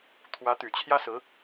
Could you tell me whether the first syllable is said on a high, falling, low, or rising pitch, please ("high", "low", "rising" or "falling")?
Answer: rising